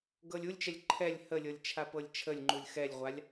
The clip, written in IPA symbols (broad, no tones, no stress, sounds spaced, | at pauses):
ɡ ɤ lʲ u lʲ t͡ʃ ɛ lʲ ǃʰ ɛ lʲ h ə lʲ ɤ lʲ t͡ʃʰ a p ɤ lʲ t͡ʃʰ ə lʲ ŋ͡ǃ u lʲ x ɛ lʲ ʁʷ a lʲ